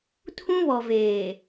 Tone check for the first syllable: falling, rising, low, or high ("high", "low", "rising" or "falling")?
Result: high